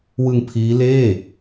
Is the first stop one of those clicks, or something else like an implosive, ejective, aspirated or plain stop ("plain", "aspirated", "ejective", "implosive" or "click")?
aspirated